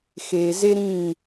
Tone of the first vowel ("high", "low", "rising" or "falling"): low